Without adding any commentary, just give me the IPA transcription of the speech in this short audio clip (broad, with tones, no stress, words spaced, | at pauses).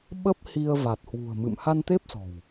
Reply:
ɓə˦˥p̚hi˧ə̯ va˨˩t̚hwṳ˨˩ə̯mɨ̰˧˨m ha˧nt̪e˦˥p̚sɔ̤˨˩w